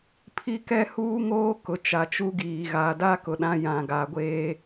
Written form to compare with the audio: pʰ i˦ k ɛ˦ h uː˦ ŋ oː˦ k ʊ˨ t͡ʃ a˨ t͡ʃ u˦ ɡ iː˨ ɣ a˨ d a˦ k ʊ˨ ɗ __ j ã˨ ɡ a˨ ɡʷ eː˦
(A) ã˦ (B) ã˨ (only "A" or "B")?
A